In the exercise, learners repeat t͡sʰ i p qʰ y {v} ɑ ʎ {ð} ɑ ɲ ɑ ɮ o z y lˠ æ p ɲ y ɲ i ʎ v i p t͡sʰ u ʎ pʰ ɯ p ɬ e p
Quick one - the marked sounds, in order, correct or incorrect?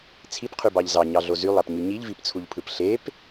incorrect: b, incorrect: z

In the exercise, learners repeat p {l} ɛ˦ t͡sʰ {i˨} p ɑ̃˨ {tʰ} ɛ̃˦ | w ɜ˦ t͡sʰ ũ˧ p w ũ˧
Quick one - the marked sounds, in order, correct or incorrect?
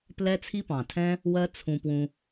correct, incorrect: i˦, correct

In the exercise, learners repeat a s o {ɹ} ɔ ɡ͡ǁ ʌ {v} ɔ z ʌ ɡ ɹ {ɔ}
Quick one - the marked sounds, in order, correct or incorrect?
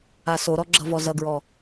incorrect: ɾ, correct, correct

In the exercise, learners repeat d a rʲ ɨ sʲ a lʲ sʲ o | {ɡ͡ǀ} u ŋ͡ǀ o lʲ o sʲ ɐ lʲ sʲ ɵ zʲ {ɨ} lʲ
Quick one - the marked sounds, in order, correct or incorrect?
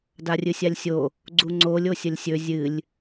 correct, correct

